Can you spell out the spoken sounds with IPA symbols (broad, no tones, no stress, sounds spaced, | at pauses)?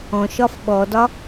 ɔ̃ ʃ ɒ f ɓ ɔ d ɒ